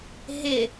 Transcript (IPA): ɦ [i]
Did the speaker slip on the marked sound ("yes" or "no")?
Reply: yes